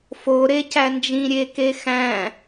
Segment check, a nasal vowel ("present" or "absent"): present